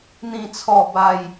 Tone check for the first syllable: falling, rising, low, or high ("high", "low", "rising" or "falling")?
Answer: low